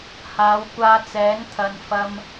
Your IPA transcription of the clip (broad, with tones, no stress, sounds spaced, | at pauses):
h aː˨˧ w kʷ aː˧ t͡s ɛː˨˥ ŋ t̪ʰ ɐ˧ n f ɐ˧ m